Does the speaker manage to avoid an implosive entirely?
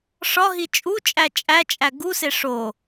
yes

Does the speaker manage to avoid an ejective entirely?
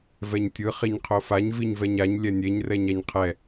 yes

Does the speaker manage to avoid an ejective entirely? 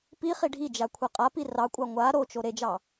no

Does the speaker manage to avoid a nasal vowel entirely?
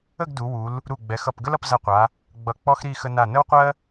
yes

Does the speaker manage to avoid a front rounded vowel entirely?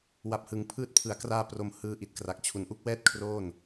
yes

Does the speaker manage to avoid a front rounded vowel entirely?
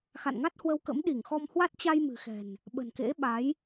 yes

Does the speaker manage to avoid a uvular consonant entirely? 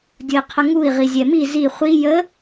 no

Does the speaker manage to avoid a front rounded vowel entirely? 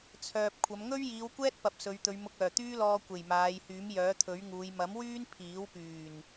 no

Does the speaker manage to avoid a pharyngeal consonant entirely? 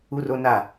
yes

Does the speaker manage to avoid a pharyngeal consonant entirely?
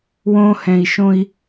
yes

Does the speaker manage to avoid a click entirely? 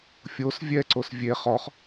no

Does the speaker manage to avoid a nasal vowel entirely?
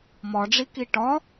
yes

